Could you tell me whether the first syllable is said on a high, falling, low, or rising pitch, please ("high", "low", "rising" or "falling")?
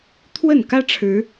falling